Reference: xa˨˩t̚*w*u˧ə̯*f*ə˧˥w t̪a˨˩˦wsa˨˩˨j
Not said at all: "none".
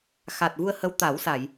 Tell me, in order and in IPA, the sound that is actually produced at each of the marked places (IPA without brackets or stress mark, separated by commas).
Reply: v, h